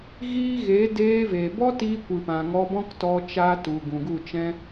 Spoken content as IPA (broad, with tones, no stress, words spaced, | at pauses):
ɣiː˦ ɣe˨˦ deː˧veː˨bɔ˦tiː˧ kʷɨ˨pã˨ ŋɔ˧bɔ̃˦ktɔ˧ t͡ʃa˧tu˨ ɡũ˨ɡu˦˨t͡ʃɛ̃˦